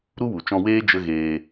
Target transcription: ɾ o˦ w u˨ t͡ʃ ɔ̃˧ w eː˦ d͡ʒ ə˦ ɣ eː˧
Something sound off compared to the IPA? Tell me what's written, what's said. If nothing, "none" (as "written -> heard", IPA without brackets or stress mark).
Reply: o˦ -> u˦